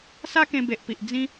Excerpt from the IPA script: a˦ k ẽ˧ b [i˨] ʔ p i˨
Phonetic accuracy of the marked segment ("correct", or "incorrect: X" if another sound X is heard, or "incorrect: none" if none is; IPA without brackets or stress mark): incorrect: e˨